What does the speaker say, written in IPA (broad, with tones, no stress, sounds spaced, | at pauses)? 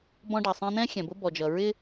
b ɔ̃˦ ɖ ɑ˨ sˤ ɛ̃˦ n̪ ɛ̃˦ xʲ ɛ̃˨ b ʊ˦ b ɔ˨ d͡ʒ ʌ˨ ɹ ɪ˦